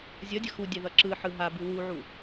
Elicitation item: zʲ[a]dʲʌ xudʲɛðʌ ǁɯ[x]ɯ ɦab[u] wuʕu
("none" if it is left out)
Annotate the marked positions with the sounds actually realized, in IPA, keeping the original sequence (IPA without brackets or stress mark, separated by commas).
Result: ʌ, ħ, ɯ